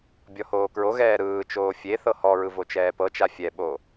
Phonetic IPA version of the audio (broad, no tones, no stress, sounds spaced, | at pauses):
bʲ ɔ h oː k ɹ o ɣ ɛː ɾ ɯː t͡ʃ oː fʲ e θ ɤ h ɔ ɹ ɯ v o t͡ʃ ɛː p ɤ t͡ʃ a fʲ ɛ ɓ o